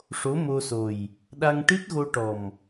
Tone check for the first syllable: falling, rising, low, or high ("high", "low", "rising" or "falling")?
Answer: rising